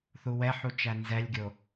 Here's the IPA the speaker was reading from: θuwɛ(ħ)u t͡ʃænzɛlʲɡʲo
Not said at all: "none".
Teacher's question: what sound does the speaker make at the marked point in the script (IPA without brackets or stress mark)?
ħ